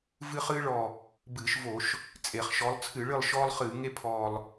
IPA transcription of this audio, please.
v ɨ˦ χ ɨː˦ ɭ ɔ˨˩ | b ɨː˧˩˧ ʃ v o˧˩˧ ʃ | t͡sʼ e˧˩˧ χ ʃ ɔ˨˦ lˠ t͡sʰ ɨ˧˩˧ ɭ ɨ˦˨ lˠ ʃ ɔː˦ lˠ χ ɨː˧˩˧ ŋ e˦ pʰ ɔː˨˩ lˠ

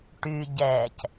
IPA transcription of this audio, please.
ʈ y ɟ ɛː c

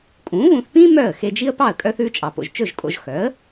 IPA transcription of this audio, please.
kʼ ũː˩˥ β ũ˧ θ p ĩː˥ m œ˥˩ ə̯ x e˧ d͡ʒ i˥ ə̯ p ɑ˥˩ ə̯ kʼ œ˧ θ ʉː˧ t͡ʃʼ ɑ˩ p o̰˩ ʒ t͡ʃ ɵ˥˩ ʒ kʼ o̰˧ ʒ x œ˩˥ ə̯

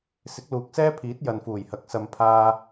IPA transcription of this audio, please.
s ɪ˨˥ k̚ l uː˨ k̚ s ɛː˥ pʰ iː˨˥ t̚ j ɐ˨ n f uː˨˩ j h ɐ˨˥ k̚ s ɐ˧ m pʰ aː˥

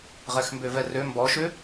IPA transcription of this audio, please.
ʁ ɛ x m b ø v ɛ r ø m b ɔ ʃ ø

